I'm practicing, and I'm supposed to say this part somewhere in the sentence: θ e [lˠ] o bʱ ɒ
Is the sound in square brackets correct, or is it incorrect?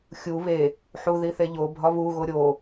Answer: incorrect